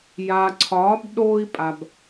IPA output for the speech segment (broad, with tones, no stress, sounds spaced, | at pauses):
j aː˨ ǀʰ ɒː˨˦ b ɗ oː˧ i̯ pʼ a˨ b